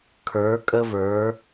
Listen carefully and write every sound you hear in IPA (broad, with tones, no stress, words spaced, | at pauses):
kʰə˞˨˦kʼə˦ və˞˨˦